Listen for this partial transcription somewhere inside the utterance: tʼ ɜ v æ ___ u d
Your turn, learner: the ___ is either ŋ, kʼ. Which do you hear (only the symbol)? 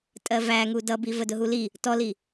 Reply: ŋ